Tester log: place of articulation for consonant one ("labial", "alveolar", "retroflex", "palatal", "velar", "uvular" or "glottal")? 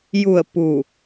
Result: palatal